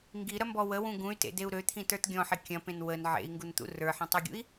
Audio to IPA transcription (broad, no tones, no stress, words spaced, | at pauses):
ŋɡiɾɐmbɔ wəwũ ɡũy̯tḛdeu̯ ɾøt̪ʰĩtə˞t ɡʲɔ̃ħi kʲɐ̃pẽn wən ʕḛi̯ŋɡunt̪ṵ rə˞ħĩtˤeɡʲṵi̯